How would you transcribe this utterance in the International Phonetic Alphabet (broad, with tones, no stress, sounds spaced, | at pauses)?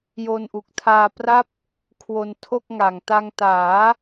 j o˧ n ʔ u˨˩ k̚ tʰ aː˧ p r a˥˩ p̚ | kʰ w o˧ n tʰ o˥˩ k̚ ŋ a˨˩ ŋ t a˧ ŋ t aː˩˦